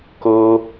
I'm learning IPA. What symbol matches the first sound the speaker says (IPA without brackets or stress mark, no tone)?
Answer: k